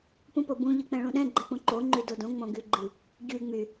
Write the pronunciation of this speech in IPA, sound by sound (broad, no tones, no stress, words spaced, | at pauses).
pũpobũ ʎɨk͡pɛ̃ɭũɗɛ̃ ɡ͡ǃɛk͡pũǃo ŋ͡ǃydodõ ŋ͡mõɡyɡ͡ǃɨ | ɟy ŋ͡my